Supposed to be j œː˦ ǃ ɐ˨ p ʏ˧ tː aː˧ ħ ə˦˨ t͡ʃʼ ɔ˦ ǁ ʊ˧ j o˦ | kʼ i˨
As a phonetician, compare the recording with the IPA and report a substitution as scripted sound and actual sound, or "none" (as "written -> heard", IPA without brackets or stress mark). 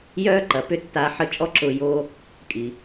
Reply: none